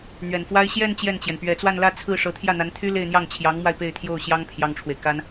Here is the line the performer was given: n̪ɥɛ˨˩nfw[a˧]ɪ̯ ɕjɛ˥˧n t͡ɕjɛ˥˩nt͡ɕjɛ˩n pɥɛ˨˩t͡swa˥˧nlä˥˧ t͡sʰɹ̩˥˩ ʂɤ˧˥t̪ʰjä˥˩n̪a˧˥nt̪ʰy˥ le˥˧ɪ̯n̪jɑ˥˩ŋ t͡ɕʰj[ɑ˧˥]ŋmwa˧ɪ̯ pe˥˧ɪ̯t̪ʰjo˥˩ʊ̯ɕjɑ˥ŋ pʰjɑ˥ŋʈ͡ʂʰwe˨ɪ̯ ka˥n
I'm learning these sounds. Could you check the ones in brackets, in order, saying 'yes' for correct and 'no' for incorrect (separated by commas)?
no, yes